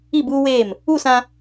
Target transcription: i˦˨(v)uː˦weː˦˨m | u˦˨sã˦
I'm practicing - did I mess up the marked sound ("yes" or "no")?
yes